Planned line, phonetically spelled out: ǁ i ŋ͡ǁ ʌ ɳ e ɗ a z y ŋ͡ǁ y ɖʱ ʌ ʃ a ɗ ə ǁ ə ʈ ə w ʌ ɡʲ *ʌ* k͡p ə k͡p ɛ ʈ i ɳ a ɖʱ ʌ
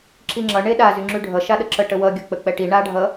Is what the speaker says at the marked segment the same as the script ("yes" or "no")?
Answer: yes